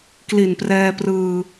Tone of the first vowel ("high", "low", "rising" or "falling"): low